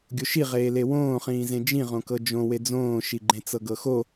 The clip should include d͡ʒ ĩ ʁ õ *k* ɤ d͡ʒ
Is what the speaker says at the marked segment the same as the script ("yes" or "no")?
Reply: yes